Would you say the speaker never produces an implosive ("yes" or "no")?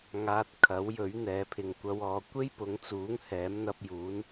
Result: yes